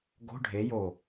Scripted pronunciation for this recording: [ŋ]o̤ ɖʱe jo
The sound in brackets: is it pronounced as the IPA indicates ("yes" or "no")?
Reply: no